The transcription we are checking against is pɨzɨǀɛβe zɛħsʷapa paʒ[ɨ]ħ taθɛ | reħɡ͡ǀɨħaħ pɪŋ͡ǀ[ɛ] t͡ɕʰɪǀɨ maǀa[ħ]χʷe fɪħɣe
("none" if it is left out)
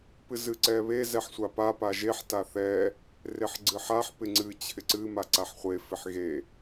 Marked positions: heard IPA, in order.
e, ɨ, ħ

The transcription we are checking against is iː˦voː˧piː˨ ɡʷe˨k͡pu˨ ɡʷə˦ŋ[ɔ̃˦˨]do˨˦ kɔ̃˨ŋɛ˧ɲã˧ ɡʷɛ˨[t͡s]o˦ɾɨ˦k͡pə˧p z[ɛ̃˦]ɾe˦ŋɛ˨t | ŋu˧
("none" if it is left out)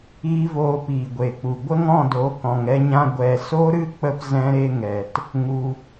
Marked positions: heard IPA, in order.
ɔ̃˦˨, s, ɛ̃˦

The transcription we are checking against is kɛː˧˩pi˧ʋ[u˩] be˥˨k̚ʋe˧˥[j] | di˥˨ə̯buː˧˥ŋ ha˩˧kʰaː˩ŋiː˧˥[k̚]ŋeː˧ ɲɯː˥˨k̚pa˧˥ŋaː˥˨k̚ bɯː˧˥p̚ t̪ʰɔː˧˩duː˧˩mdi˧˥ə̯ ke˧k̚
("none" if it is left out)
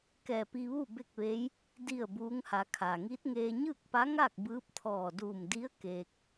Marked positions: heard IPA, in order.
u˥˨, j, t̚

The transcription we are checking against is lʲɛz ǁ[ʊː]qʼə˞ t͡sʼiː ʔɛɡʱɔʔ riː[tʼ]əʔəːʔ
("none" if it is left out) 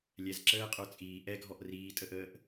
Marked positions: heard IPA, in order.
əː, tʼ

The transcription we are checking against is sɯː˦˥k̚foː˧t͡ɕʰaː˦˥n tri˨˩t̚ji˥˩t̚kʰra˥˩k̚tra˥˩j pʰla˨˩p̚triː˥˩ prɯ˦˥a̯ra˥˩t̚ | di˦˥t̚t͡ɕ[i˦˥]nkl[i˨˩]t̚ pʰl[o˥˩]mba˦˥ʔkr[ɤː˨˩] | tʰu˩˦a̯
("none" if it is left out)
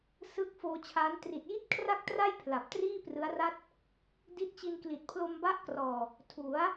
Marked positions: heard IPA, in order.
i˧, i˨˩, o˧, ɔː˨˩

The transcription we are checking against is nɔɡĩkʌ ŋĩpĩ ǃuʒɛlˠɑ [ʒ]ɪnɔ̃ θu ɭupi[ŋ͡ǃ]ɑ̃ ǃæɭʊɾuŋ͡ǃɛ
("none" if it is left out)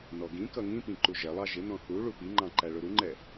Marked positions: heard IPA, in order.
ʒ, ŋ͡ǃ

